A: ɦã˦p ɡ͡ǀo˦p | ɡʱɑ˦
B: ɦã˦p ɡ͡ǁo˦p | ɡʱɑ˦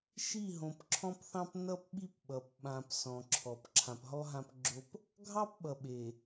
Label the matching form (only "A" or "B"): B